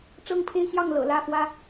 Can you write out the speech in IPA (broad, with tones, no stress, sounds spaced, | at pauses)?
ʈ͡ʂ ɤ˦ ŋ pʰ e˦ ɪ̯ ɕ j ɑ˥˨ ŋ l ɤ̰˨˩ l ä˥˨ f w ä˦